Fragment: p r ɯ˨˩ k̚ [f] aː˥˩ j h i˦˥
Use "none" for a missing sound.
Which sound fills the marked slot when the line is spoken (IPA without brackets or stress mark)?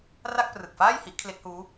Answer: f